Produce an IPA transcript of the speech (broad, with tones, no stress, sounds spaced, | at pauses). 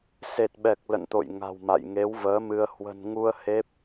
s e˨˩ t̚ ɓ ɛ˨˩ k̚ l ə̰˧˨ n t̪ o̰˧˨ j ŋ a̤˨˩ w m a̰˧˨ j ŋ e˨˦ w v əː˨˦ m ɨ˧ ə̯ h w ə̤˨˩ n ŋ u˧ ə̯ h e˦˥ p̚